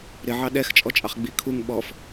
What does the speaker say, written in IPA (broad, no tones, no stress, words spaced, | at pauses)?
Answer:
ɾɪʕɑ ɗɛxt͡ʃʼɔt͡ʃʼɑχ ɡ͡bikʰuŋ ɓɔf